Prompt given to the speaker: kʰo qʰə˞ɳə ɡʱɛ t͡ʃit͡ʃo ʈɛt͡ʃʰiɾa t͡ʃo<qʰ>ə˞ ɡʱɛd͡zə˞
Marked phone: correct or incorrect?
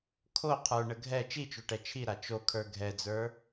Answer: incorrect